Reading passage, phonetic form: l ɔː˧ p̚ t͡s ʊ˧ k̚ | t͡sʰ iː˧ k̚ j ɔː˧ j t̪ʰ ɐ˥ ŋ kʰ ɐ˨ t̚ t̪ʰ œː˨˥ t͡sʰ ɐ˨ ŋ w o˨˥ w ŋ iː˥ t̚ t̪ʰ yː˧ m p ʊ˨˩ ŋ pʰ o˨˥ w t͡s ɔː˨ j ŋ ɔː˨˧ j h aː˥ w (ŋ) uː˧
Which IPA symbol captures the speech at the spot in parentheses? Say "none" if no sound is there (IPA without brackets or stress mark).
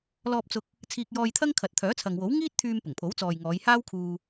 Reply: kʰ